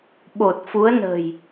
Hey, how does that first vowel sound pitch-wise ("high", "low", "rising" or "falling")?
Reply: low